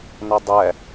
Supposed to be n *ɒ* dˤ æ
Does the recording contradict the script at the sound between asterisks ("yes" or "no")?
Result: no